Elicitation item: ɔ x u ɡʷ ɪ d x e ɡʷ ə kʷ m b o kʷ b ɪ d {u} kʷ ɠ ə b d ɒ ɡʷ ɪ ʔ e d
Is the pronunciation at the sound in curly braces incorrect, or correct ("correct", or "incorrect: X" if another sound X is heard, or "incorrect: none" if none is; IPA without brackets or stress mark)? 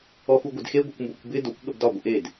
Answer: incorrect: o